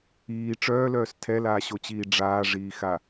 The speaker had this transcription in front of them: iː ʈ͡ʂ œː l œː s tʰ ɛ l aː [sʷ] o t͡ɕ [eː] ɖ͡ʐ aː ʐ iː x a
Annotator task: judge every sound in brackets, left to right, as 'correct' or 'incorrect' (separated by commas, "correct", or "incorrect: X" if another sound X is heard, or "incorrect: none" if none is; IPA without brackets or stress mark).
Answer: incorrect: ɕ, incorrect: iː